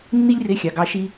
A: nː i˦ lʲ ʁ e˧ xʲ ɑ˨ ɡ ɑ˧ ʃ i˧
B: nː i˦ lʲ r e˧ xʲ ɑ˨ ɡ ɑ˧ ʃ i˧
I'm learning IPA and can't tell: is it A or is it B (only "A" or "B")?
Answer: B